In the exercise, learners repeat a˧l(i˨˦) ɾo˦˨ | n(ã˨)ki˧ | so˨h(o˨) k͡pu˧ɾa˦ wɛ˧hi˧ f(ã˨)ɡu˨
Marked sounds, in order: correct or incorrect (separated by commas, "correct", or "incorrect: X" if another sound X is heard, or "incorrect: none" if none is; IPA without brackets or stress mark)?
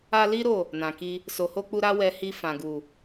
incorrect: i˦, correct, incorrect: o˧, correct